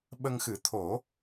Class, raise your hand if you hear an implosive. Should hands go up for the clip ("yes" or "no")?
yes